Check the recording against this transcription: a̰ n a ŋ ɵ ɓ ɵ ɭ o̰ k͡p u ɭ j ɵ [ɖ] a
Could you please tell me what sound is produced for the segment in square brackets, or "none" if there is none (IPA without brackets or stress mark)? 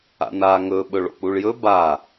b